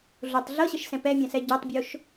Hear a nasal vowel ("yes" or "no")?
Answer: yes